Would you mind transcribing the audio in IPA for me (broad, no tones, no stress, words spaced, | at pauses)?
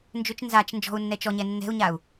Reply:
nd͡ʒʏt͡ʃ nzat͡ʃ nd͡ʒɔ̤u̯nːɛ t͡ʃɔɲɛ nːɛ̤u̯ɲau̯